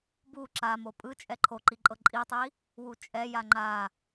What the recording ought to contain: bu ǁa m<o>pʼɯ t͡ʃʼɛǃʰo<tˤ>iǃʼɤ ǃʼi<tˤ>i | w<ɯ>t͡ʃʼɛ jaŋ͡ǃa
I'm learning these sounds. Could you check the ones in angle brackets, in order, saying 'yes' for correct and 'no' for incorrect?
yes, no, yes, no

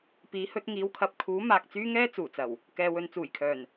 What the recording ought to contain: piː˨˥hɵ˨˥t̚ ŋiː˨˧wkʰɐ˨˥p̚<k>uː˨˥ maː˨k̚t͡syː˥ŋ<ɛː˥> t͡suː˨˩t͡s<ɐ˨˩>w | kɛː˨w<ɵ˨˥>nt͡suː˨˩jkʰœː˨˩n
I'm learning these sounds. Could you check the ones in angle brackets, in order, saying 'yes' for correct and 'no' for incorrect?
no, yes, yes, no

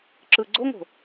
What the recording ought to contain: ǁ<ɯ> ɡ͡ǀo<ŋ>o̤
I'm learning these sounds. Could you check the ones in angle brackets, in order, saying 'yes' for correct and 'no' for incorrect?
yes, yes

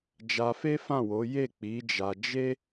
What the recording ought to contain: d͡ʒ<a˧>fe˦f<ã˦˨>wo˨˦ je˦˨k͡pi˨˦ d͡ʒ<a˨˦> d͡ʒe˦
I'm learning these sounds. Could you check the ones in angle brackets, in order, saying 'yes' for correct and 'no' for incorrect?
yes, yes, no

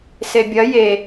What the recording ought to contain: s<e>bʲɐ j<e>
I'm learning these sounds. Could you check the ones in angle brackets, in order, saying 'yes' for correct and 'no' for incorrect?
yes, yes

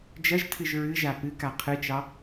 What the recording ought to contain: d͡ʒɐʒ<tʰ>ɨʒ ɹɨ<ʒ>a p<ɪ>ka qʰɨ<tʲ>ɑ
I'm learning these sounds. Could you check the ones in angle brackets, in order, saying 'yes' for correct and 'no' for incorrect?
yes, yes, no, no

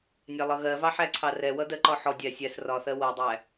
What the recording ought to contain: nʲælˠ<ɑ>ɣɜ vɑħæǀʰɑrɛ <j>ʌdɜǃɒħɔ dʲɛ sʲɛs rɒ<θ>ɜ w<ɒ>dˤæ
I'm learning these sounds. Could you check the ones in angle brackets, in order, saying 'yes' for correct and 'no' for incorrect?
no, no, yes, no

